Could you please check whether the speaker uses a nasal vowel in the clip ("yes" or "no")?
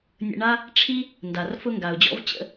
no